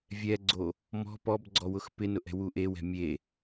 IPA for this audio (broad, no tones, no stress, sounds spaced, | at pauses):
vʲ ɛ ɡ͡ǀ o | m ɔ̤ p ɔ b ɡ͡ǀ ɔ w ʊ x p ɪ n ʊ ʔ ɛ̤ w u ʔ e w ɛ̤ mʲ e